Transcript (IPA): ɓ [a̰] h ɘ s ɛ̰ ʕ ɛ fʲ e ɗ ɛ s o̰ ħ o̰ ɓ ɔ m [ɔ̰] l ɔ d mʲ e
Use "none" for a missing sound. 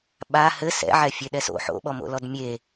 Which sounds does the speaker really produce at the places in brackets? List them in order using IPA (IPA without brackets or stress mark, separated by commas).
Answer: a, o̰